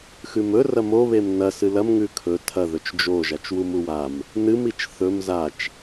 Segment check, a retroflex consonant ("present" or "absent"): absent